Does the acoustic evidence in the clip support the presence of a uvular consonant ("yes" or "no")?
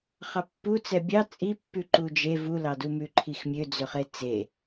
yes